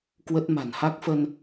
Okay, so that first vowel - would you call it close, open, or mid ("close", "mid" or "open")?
mid